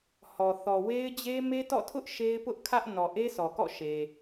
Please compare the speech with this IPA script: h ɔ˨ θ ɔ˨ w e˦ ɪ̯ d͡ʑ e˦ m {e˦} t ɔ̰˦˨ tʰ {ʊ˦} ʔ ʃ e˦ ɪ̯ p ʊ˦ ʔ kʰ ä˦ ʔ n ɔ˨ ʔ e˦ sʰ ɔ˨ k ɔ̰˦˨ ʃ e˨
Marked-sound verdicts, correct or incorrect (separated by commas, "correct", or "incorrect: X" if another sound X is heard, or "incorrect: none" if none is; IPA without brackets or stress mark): correct, correct